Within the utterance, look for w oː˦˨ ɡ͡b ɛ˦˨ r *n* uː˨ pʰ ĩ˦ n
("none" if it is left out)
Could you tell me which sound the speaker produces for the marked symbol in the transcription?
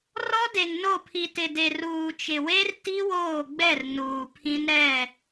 n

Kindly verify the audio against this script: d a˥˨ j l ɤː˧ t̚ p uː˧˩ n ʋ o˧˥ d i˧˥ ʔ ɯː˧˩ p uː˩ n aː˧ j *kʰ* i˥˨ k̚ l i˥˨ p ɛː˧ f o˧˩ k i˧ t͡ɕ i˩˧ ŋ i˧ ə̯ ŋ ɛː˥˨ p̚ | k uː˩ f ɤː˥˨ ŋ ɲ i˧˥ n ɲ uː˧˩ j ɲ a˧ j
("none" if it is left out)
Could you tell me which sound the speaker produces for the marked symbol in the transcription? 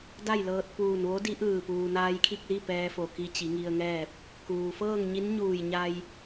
kʰ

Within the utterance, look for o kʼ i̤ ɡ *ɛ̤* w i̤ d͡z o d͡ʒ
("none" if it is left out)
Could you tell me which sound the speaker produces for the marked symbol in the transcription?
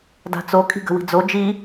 ə̤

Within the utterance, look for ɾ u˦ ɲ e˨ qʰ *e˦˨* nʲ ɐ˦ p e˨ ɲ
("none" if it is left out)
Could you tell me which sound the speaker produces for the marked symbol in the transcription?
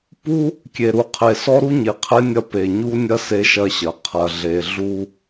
e˦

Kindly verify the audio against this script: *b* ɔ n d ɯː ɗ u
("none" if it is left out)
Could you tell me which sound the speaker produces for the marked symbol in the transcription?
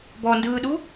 b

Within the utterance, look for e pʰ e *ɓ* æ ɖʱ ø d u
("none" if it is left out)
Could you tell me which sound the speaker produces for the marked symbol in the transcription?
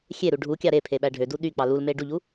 ɓ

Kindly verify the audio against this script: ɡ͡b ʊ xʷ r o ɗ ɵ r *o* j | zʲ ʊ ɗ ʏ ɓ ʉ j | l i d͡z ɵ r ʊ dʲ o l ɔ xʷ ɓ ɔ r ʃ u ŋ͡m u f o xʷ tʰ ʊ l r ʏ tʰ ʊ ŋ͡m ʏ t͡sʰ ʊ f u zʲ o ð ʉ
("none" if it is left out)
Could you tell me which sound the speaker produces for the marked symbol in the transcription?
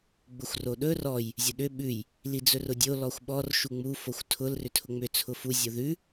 ɔ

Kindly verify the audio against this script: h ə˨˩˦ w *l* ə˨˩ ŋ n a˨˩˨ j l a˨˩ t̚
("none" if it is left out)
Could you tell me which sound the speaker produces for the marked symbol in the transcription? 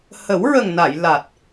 ɹ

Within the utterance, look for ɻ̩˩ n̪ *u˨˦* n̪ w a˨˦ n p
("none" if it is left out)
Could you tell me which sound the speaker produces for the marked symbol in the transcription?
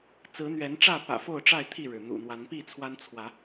ṵ˨˩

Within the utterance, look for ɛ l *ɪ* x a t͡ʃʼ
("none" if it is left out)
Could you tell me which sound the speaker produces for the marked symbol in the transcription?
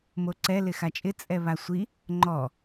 ɪ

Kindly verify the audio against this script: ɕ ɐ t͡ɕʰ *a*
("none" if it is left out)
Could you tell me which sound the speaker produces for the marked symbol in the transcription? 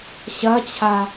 a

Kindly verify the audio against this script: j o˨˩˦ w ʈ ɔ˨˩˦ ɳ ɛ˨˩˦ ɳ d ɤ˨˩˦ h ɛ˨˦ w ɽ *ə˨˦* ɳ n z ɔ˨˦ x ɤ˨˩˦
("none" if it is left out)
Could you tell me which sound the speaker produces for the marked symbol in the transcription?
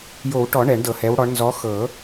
ɔ˨˦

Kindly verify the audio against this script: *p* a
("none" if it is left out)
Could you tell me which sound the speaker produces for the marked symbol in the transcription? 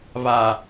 β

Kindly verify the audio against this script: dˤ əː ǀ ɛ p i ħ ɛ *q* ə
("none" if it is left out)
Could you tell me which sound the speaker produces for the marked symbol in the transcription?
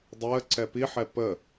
p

